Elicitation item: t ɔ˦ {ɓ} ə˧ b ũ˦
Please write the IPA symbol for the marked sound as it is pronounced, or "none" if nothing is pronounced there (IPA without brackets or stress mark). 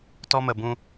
m